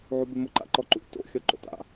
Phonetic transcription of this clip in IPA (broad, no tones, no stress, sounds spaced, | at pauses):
ʕ u b ɪ m ʊ ǃ a̰ ǃ ɔ ǃ ṵ t o̰ xʲ ɔ ǃ o̰ t a̰